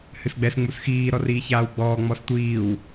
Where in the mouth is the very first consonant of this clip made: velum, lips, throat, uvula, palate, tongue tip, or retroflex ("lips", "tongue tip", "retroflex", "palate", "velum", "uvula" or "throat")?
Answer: throat